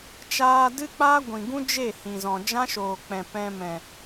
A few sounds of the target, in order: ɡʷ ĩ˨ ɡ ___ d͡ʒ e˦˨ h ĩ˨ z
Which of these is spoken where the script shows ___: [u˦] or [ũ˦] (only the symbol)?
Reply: ũ˦